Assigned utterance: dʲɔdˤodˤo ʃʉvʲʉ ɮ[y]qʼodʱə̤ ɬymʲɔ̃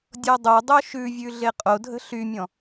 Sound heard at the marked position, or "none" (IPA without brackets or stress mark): e